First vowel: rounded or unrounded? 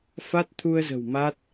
unrounded